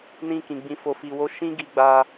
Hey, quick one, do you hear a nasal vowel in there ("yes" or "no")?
yes